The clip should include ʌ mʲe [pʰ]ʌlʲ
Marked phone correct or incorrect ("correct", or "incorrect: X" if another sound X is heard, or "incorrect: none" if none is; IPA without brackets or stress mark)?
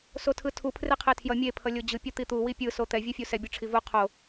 correct